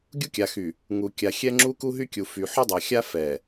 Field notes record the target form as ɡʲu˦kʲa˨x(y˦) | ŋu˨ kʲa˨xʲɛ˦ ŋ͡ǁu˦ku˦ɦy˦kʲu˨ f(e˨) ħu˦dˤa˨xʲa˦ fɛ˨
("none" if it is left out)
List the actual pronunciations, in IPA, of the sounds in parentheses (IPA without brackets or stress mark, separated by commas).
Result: y˨, y˨